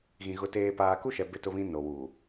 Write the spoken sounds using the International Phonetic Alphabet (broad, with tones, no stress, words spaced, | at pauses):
ɣĩ˨ ɣʊ˨teː˨ paː˨ku˦ʃɛ˨ bɪ˦tʊ˦βĩ˦ no˨wuː˨